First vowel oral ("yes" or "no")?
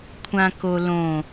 no